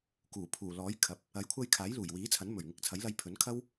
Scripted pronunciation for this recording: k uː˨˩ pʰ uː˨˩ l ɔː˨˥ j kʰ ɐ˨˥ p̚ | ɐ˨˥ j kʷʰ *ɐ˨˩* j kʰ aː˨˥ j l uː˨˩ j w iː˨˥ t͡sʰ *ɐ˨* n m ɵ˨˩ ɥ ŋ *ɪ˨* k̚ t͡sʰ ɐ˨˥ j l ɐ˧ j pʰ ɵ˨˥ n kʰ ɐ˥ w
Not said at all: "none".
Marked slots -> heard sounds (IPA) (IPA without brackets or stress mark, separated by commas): ɐ˧, ɐ˨˥, ɪ˨